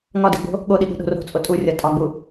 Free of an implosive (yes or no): no